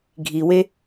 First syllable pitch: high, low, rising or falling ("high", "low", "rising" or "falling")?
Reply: low